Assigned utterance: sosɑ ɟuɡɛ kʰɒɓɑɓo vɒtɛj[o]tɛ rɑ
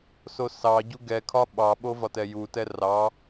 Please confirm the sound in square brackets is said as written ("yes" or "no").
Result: no